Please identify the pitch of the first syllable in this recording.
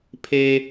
high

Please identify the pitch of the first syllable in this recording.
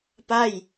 falling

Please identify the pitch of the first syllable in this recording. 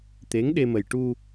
rising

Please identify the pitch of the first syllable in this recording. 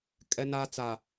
high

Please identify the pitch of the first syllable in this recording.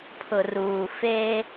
low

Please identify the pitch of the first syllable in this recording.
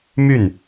falling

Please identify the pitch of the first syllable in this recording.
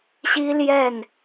high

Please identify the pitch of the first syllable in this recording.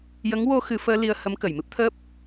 rising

